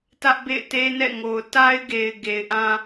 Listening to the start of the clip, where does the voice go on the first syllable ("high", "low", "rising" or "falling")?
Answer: high